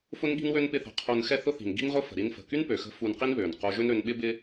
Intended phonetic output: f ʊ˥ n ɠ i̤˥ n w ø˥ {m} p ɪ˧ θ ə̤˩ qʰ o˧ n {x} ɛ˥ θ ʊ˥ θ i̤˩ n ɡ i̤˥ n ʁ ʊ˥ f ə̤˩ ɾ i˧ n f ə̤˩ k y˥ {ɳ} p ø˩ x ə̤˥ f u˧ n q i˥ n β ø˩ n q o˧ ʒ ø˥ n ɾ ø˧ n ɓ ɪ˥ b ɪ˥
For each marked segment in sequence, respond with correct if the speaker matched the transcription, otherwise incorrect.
incorrect: n, correct, incorrect: n

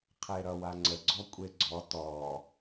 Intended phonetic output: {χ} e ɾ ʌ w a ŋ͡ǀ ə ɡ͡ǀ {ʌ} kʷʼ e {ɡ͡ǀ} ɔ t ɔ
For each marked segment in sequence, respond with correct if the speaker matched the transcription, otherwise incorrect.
incorrect: qʰ, incorrect: ɔ, correct

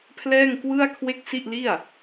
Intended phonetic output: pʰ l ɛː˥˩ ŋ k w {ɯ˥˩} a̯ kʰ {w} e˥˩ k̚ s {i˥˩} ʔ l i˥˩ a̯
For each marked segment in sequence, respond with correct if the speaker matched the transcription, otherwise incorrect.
correct, correct, correct

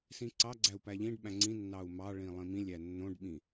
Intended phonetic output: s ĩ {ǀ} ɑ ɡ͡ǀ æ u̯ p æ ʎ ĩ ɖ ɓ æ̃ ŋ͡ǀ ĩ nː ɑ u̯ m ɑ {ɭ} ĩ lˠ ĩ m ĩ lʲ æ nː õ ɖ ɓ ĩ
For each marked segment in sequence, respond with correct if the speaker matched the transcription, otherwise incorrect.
correct, correct

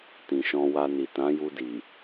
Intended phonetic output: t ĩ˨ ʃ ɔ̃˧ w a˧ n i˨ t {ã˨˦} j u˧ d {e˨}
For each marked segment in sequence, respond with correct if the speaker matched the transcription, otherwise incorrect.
correct, incorrect: i˨

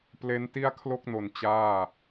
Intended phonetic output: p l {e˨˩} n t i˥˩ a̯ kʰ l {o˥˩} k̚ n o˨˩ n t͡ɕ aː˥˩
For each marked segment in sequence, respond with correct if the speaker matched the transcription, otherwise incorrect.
incorrect: e˦˥, correct

